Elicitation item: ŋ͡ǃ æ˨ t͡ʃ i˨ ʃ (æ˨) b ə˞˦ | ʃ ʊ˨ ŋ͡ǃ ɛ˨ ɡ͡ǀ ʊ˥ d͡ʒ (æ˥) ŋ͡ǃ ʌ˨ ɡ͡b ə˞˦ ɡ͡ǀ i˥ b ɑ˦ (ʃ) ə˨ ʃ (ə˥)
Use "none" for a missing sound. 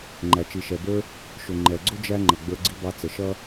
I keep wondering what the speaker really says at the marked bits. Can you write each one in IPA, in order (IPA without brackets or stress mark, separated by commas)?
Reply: ɛ˨, æ˦, t͡s, ʌ˥